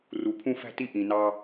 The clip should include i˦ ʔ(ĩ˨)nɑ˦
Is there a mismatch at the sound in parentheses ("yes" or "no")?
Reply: no